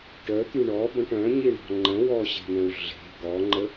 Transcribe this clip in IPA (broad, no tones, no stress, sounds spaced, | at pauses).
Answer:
ʈ œ t̪ y ɳ ɔ b ə̃ ʈ œ̃ ɲ i ɳ ɔ̤ ŋ͡ǃ ə̃ w ɔ ɕ e̤ n ə̃ u̯ ɮ e̤ ɡ ɔ ŋ͡ǃ ə